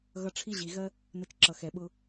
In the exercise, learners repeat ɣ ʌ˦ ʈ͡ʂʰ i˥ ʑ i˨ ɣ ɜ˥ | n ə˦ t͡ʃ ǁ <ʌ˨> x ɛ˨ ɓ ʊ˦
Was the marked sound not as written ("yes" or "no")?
no